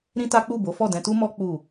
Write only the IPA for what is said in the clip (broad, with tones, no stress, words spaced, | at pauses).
ɾĩ˦ta˦ k͡pu˦˨bo˨˦fɔ˦˨ dɛ̃˧tu˦mɔ˦ k͡pu˦˨